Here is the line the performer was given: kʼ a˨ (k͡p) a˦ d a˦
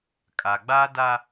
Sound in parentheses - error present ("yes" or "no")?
yes